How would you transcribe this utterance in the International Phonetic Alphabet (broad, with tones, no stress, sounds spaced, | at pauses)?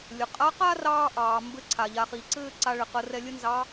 lʲ ə˩ qʼ a˧˥ q a˥ r ɑː˥ ʔ ɑː˩ m b ɘ˧˥ ǀʰ a˩ ʎ a˩˧ χ i˩ ǀ ɘː˥ ǀ a˧ ɭ ɘ˩ q ə˩˧ r ɛ˧ lʲ ə˥ n z ɑ˧˥